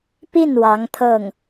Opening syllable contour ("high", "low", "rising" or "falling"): falling